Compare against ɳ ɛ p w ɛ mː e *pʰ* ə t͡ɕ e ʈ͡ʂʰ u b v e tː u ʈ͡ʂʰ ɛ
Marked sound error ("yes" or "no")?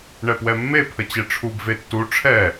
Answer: no